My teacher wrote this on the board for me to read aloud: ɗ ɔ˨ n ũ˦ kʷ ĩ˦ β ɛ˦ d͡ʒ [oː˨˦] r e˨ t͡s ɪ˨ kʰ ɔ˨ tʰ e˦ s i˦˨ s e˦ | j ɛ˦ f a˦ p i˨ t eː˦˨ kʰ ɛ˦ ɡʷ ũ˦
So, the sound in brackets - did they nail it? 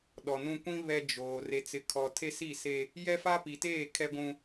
no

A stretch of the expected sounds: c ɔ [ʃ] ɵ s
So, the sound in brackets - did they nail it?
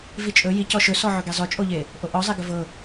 yes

